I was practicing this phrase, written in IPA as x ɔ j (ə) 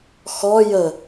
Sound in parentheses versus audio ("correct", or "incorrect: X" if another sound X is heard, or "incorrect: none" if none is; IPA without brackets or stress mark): correct